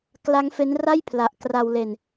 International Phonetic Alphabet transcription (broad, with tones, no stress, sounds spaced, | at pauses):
k l a˦˥ ŋ f e˦˥ n r a˥˩ j pʰ l a˨˩ ʔ k r a˧ w l e˧ n